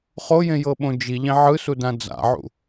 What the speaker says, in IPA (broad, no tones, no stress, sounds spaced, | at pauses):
χ o j ẽ j ɤ ɓ õ d͡ʒ i ʎ ẽ ʕ ɯ s u d ã d͡z a̰ ʕ ṵ